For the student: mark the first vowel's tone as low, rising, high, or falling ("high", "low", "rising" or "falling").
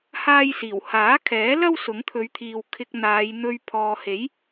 high